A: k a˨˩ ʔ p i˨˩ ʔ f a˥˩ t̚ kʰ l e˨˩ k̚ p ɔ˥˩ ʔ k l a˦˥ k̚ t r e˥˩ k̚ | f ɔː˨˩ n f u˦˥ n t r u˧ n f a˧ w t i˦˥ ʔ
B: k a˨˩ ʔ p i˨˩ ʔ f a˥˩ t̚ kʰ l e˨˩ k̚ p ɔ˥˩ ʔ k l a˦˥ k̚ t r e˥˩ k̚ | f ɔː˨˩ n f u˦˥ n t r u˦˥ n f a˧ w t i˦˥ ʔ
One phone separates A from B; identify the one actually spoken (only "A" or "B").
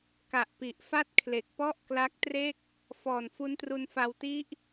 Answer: A